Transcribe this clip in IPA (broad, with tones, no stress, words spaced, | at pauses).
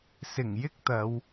sɪ˨˩ŋjɪ˥k̚t̪ɐ˨˧w